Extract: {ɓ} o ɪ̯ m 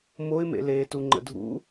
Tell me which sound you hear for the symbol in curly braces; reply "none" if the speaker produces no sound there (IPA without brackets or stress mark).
m